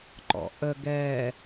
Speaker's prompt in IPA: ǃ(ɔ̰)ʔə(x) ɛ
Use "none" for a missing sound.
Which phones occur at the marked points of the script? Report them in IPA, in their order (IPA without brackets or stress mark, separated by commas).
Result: ɔ̰, ɡ